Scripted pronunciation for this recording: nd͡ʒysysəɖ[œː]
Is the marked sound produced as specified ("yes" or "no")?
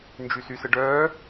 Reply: yes